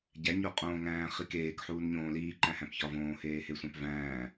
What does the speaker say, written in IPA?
ɟ æ ɲ o qʼ õː ŋ æ̃ː χ i k eː k ħ uː n ɲ õː l iː ǃ æ̃ h æ̃ p ç ɒ v õː h eː h e sʷ æ̃ p v æ̃ː

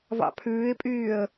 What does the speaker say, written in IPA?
v ɑ̰ pʰ ʉː ɪ̯ pʼ yː ə̯

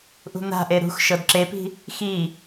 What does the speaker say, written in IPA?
ʔ ṳ n̪ a̤ ʔ e ɾ ṳ x ʃ ɤ d ǁ e p i̤ | x i

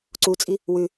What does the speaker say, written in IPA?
ǀ u t͡sʼ i | w ʉ

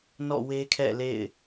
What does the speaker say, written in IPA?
n ɔ̰˦˨ w e˦ kʰ ɛ̰˦˨ l ḛ˦˨ ɪ̯

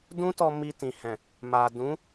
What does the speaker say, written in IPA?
d ũ˦ t ɔ˧ m i˧ t ĩ˨ h ɛ̃˨ | m a˨ d ũ˨˦

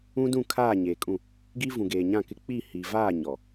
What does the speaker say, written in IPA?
ũ˦ d ũ˦˨ kʰ aː˦˨ ɲ eː˨ kʼ ũ˦˨ | ɡ i˦ v ũ˨ ɡ eː˨ ɲ ã˦˨ k ɪ˦ k͡p i˦˨ h i˨ v aː˦˨ ɲ ɔ˨

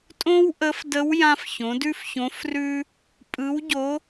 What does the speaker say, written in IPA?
tʼ õ˥ w ʔ ə˧˥ f d ə˧˥ w j ã˧ f ç õ˩˧ d ʉ˥ f ç õ˧˥ f r ʉ˥ | pʼ ɯ˧˥ w ɟ o˧˥

